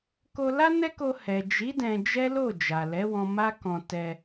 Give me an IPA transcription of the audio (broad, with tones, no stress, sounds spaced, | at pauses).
k o˧ l a˦ n ɛ˦ k o˧ h ɛ˨ d͡ʒ i˨˦ d ɛ̃˧ d͡ʒ ɛ˦ l o˦˨ d͡ʒ a˨ l ɛ˨˦ w ɔ̃˧ m a˦ k ɔ̃˧ t ɛ˧